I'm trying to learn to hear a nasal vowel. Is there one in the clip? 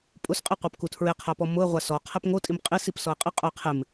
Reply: no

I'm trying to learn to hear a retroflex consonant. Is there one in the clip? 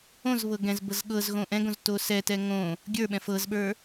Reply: no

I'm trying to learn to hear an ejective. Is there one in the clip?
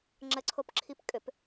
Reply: yes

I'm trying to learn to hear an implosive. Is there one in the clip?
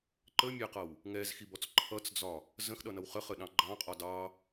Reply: yes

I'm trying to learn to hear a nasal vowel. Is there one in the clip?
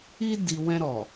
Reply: yes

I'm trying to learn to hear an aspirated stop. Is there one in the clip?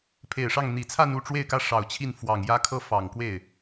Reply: yes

